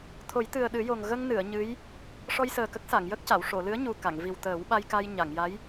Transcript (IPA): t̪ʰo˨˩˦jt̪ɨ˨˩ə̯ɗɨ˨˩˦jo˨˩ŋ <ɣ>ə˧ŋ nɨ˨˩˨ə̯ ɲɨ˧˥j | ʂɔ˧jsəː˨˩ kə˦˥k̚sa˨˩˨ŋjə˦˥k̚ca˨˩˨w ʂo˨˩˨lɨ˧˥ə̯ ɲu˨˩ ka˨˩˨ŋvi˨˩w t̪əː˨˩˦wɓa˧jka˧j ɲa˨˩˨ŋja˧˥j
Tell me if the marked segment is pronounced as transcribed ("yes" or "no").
yes